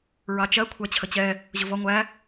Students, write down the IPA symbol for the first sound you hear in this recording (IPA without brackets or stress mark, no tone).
ɹ